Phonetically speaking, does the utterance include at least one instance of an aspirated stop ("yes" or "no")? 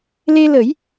no